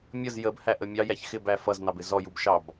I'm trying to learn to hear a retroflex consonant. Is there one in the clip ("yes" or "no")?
no